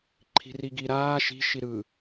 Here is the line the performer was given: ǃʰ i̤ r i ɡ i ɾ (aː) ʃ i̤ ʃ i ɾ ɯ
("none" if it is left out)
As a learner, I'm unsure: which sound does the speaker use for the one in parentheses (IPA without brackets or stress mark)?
aː